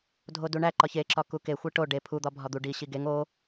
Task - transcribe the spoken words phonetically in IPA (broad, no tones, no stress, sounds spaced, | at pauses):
dʱ o d u ɳ æ ǃ ɒ ç e ǁ ɒ k u k e xʷ e ʈ o ɖ e pʰ u d̪ ɒ bʱ ɒ d̪ u ɖ i ɕ i ɡ e ŋ o